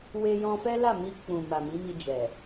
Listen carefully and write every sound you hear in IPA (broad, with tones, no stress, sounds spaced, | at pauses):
w e˦ j ɔ̃˧ f ɛ˦ l a˦˨ m i˧ k͡p ũ˨ m a˨ m i˨˦ m i˧ d͡ʒ ɛ˨